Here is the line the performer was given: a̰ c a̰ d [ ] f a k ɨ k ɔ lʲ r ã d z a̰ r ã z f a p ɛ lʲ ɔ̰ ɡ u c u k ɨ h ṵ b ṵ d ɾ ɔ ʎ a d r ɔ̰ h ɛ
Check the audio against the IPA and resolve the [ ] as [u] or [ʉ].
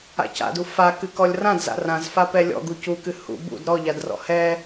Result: u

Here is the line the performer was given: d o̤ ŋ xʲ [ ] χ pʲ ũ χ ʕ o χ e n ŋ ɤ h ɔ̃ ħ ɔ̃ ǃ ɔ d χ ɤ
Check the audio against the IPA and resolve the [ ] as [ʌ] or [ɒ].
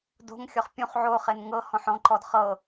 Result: ɒ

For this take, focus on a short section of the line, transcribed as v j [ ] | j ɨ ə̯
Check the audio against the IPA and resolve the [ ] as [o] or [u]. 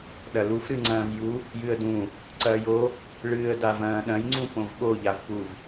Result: u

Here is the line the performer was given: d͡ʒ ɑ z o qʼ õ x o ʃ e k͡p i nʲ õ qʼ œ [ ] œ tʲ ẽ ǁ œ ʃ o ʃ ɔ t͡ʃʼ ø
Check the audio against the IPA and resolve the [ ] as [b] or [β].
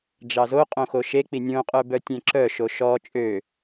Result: b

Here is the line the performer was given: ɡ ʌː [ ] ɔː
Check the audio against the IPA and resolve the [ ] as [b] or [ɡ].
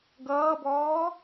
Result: b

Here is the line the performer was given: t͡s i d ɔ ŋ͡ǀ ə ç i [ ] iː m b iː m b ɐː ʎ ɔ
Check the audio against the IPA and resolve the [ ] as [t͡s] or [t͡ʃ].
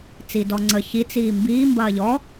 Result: t͡s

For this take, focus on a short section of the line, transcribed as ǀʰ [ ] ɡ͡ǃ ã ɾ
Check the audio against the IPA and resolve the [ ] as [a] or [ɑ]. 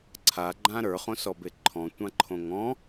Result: a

